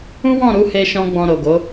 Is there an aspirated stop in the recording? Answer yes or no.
no